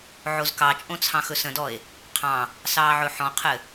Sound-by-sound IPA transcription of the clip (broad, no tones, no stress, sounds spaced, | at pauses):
ʕ o z k ɑ t͡ʃʼ õ t͡sʰ ɑ̃ x ɵ s ə̃ d ɔ e̯ | qʰ ɑ̃ | s ɑː ʕ ɵ ħ ɔ̃ qʰ ɘ